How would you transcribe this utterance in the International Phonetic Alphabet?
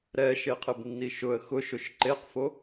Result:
ɾ ɛ ʃ e qʰ ɪ b nː i ʃ ʊ ə̯ x ʊ ʃ ʊ ʃ ǃ e q f o

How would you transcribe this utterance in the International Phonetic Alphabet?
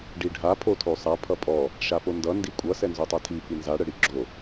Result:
ɖ i ɖʱ a pʰ o tʰ o sˤ a pʰ ʌ pʼ ɔ | ʃ a p o n d ʌ n d i kʷʼ ʌ s ɛ n z o tˤ a tʰ i f i n z a ɽ ə ɽ i ɡ͡ǁ o

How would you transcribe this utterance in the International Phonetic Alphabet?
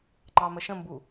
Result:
ŋ͡ǃ ɑ m ə ʃ ə̃ m b u

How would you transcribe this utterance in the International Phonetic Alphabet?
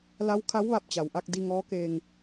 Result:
l a˧˥ w kʰ a˧˥ w ʋ a˧ p̚ t͡ɕ a˩ w ʔ a˧ k̚ d i˧ ŋ ɔː˧˥ k eː˧ ŋ

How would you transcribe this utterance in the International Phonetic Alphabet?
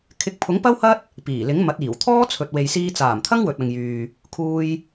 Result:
kʰ ɪ˨˥ k̚ pʰ ʊ˨˥ ŋ p ɐ˥ w h ɐ˥ t̚ | p iː˨˩ l ɪ˨˥ ŋ m ɐ˨˥ t̚ iː˨˩ w t̪ʰ ɔː˥ t͡sʰ ɵ˨ t̚ w e˨ j s iː˧ t͡s aː˨˩ m t̪ʰ ɐ˥ ŋ w ɵ˨ t̚ ɐ˨ ŋ j yː˨ | kʰ uː˧ j

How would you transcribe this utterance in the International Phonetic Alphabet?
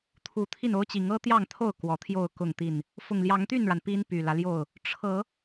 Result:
t̪ʰ u˨˦ t̪ʰ i˥˨ n o˦ ʊ̯ t͡ɕ i˨˦ ŋ ɤ˦ t̪ j ɑ˥˨ ŋ t̪ʰ o˥˨ ʊ̯ k w ɔ˨˦ t̪ʰ j o˥˨ ʊ̯ k ʊ˥˨ ŋ t̪ i˥˨ n | f ʊ˨˩ ŋ l j ɑ˨˦ ŋ t̪ y˥˨ n ɻ a˩ n p i˦ n p y˨˩ l ä˦ l j o˥˨ ʊ̯ | ʈ͡ʂʰ ɤ˨˦

